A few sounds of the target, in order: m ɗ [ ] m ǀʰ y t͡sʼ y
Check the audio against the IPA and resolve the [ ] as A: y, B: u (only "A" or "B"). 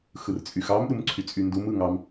B